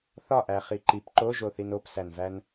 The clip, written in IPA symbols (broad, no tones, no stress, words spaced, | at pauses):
θɒʔæ χiǃip ǃoʒoθin opsænvæn